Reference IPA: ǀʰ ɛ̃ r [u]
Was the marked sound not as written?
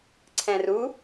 no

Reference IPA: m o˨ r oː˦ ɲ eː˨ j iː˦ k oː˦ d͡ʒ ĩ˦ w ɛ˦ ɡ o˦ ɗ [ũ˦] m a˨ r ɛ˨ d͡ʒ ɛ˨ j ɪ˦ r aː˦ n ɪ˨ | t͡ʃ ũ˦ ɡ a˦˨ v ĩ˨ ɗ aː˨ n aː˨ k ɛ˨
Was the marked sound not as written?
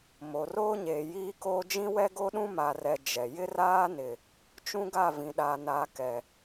no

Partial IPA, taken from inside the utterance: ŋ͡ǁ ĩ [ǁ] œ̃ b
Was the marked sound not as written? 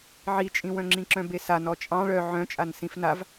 no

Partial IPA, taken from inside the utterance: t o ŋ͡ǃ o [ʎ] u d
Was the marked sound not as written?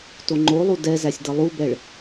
yes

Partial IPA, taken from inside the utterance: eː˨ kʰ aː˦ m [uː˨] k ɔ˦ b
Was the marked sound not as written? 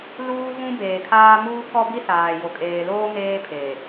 yes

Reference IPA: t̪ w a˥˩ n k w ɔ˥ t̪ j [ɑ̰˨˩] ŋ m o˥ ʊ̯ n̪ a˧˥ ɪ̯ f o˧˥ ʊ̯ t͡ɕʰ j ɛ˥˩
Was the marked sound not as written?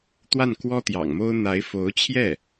no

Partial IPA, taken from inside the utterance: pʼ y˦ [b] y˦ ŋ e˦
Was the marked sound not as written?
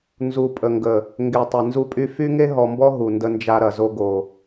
yes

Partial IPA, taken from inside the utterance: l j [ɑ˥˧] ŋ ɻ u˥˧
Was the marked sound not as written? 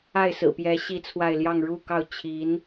no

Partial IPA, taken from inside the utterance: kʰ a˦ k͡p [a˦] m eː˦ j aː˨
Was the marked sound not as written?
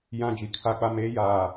no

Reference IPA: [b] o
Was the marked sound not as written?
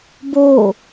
no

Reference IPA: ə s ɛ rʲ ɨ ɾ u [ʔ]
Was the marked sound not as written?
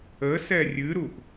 no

